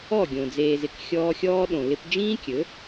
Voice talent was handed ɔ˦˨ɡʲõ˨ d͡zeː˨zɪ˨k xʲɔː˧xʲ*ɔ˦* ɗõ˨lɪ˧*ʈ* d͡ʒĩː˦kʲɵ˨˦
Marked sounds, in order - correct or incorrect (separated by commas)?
incorrect, incorrect